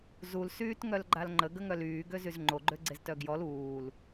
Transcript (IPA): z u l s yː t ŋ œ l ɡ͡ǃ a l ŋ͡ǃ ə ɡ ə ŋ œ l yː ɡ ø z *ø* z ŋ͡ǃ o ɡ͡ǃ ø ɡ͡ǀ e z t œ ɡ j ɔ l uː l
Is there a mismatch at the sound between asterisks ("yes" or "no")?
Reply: yes